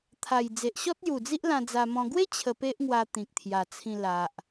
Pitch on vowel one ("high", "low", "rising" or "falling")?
low